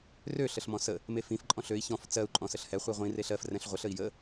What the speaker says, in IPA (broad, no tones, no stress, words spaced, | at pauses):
rø ɬəɬmɔ̃sə | mefĩf ǃʼɔ̃ɬøi̯ çɔ̃f t͡sɜu̯ ǃʼɔ̃səɬhɛ χʷiʁʷĩ reɬɜf rɛ̃ɬʁʷəɬ əi̯jə